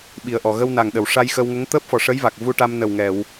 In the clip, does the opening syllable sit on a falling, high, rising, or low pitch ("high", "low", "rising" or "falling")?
low